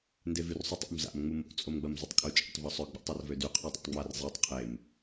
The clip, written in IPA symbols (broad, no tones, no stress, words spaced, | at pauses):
ndevyrsˤutˤṵm za̰m ŋ͡mumo̰ t͡sʼomɡ͡bɐmzʊtˤkʼʊ t͡ʃʼa̰tˤvœsˤœ ɡ͡bɔ̰tˤarvødy qʰødˤo̰tˤŋ͡mar zˤetˤ qʰem